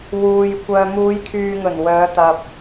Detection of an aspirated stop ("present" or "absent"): present